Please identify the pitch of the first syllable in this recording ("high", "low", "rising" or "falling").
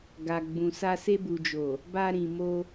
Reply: low